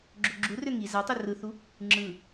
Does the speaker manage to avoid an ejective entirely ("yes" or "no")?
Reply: yes